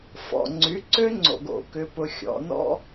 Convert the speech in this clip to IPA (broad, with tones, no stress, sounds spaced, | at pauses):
f ɔ̰˩ ŋ͡ǀ y˩˥ ǀ ø˥ ŋ͡ǀ o̰˩ ɡ o̰˩ k ʏ˧ p ʊ˧ xʲ ɔ̰˩˥ n ɔ̰˥